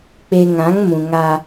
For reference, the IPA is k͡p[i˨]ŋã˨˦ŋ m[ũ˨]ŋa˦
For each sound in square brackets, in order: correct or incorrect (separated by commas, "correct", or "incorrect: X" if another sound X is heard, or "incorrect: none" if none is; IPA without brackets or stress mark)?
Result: incorrect: e˨, correct